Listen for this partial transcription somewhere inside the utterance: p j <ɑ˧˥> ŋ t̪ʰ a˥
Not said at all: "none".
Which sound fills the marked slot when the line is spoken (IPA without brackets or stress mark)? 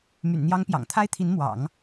ɑ̰˨˩